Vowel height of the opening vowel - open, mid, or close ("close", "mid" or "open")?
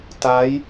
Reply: open